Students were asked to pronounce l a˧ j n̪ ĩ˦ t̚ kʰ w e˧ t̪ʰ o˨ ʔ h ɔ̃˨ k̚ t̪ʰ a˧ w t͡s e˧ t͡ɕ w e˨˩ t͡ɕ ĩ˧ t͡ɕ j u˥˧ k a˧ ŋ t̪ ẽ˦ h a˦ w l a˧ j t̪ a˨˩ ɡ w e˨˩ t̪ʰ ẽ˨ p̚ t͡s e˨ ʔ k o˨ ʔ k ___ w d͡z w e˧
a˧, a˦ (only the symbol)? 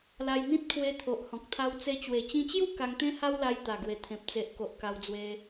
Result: a˧